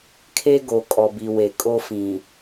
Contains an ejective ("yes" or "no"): yes